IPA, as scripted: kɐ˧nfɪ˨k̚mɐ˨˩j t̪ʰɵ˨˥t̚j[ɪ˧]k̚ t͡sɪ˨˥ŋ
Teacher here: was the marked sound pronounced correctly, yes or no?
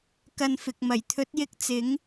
yes